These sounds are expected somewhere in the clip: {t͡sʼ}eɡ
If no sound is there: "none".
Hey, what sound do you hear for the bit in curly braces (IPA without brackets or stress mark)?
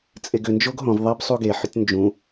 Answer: t͡sʼ